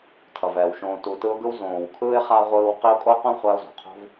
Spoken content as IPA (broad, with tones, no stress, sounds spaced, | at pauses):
tʰ ʌ˩ v ɛː˩ w ʃ õː˨ t u˨ t ɯ˦ ʊ̯ ɡ ɯ˥ w z õː˨ w kʰ ɯː˥ ɪ̯ χ a˥ ʁʷ ɯː˦ w q i˦ ʊ̯ kʼ o˥ q õ˥ χʷ a˦ ʊ̯ z o̤˩ qʰ o̤˥ v